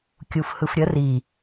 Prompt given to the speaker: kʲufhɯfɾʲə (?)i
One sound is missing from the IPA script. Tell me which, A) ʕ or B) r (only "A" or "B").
B